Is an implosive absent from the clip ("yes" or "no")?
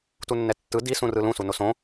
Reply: yes